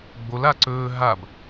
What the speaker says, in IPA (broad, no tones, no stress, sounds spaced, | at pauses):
ɡ͡b o l a ǀ ɵː ɦ a b